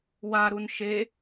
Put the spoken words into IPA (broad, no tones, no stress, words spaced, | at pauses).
waɾun ʃe